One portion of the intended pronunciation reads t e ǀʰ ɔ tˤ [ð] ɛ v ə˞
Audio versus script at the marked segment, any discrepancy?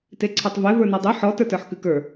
yes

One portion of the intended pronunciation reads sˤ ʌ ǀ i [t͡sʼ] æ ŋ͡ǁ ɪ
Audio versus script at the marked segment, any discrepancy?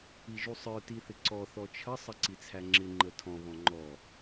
yes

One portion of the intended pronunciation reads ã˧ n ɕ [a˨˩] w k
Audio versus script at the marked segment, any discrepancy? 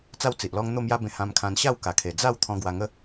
yes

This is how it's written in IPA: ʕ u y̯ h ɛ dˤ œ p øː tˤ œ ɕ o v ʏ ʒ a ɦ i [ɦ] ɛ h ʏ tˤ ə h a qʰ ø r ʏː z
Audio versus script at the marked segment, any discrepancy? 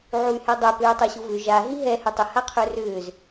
no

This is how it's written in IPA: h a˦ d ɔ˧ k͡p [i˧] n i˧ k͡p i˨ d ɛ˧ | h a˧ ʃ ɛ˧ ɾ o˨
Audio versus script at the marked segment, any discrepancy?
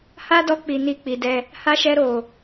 yes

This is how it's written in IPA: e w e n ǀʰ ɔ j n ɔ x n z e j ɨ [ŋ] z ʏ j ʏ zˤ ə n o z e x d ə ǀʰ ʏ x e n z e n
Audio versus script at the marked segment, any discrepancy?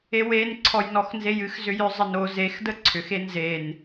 yes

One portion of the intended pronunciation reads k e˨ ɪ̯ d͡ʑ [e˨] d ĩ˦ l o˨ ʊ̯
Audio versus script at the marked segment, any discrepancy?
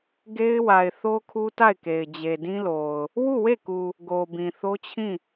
no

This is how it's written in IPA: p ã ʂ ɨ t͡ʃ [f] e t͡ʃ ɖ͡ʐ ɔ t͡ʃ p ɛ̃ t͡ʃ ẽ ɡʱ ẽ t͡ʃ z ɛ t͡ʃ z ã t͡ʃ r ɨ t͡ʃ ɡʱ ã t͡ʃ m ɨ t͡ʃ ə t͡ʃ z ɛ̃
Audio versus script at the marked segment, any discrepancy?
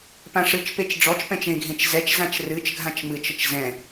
yes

